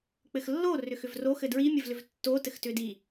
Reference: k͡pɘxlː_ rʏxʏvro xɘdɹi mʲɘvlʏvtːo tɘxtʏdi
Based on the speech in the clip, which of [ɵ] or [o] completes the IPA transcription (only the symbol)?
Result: o